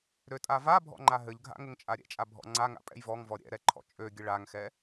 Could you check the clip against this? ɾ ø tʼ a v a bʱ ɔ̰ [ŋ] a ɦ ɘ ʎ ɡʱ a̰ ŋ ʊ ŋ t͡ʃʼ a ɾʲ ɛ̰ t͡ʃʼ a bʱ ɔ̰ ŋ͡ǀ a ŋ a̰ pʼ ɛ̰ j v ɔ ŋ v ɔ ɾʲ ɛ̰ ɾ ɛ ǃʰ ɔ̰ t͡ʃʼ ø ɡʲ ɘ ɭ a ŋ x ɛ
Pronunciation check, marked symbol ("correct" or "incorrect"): incorrect